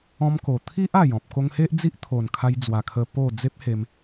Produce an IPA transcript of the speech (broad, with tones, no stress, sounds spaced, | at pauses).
ɔ̃˧ m k o˨˩ t̪ʰ i˦ ʔ a˨˩ j ɔ̃˨ p̚ k o˧ ŋ h e˦ ʔ d͡z i˦ ʔ t̪ʰ o˨˩ n kʰ a˧ j d͡z w a˨˩ kʰ ə˧ p o˥˧ d͡z e˦ p̚ h e˧ m